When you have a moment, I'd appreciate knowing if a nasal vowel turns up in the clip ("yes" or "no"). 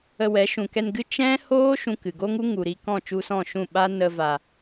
yes